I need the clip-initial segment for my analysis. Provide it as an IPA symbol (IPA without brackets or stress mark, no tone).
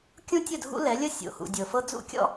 kʲ